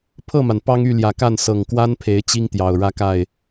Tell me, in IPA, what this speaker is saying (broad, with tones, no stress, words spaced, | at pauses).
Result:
pʰɤ˥˩ma˩n pɑ˥ŋy˥˩ljä˨˩ ka˥˩nsɤ˨˩ŋkwa˥n pʰe˧˥ɪ̯ t͡ɕi˥ŋt̪jɑ˨˩ʊ̯ ɻä˥ka˥˩ɪ̯